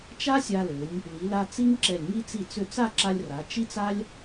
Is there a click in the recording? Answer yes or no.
yes